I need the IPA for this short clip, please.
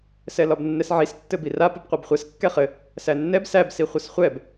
sɛlɒbnːɛsʕis tːɘbira pɘbqʷɛbχʷɛs kːɛχɘ | sænːɛb sæb siχʷɘsχʷɛb

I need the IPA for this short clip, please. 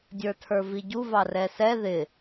dʲə˞tʰə˞viɟu vɑrɛsɛ ðɪ

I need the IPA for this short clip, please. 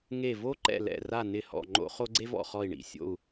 ŋe˦˨vo˥ ǃɛ̰˦˨lɛ̰˦˨ra˦˨ nɪ˦˨ hɔ̰˦˨ŋ͡ǃo̰˥χo˥ ɡ͡ǀe˥vɔ̰˦˨ χɔ˦˨i̯ɳḭ˦˨ sʲo̰˦˨u̯

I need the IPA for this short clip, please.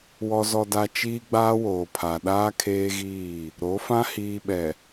wɔ˨ zɔ˨da˨ t͡ʃiː˦ɡ͡baː˦woː˨pʰa˨ ɗaː˦kʰeː˦ɣiː˦˨ | ɾo˨˦fã˦ hiː˨ɓɛ˨

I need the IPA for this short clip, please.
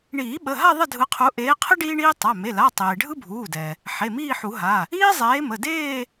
ɳiː˨˩˦ɓə˩˧˩ɦa˥˧ ðˤə˥˧dʱɯ˨˦qʰu˨˦ ʔeː˨˦qʰə˥ ɖiː˥ɳiː˥ tˤa˩˧˩ me˩˧˩la˩˧˩ tˤeː˩ɖʱɯ˥bʱuː˩˧˩dɛ˩ | ħe˩˧˩miː˥˧ħu˨˩˦ɦa˩˧˩ | iː˥zˤeː˨˦mə˩˧˩deː˥˧

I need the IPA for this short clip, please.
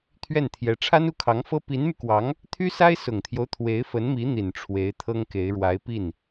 t̪ʰɥɛ˥˩nt̪ʰjɛ˧˥ ʈ͡ʂʰa˥nu˥˩kʰɑ˧˥ŋfɤ˥ pi˧˥nmy˧kwɑ˧˥ŋ | t̪ʰy˥sa˥ɪ̯ sʊ˨˩ŋt̪ʰjo˦ʊ̯ t̪ʰwe˧˥ɪ̯fə˧˥nmi˧˥ n̪i˨˩n ʈ͡ʂʰwe˧˥ɪ̯t̪ʰɤ˥ŋke˧˥ɪ̯ ɻwa˧˥ɪ̯pi˥˩n

